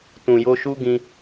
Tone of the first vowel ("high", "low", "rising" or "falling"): low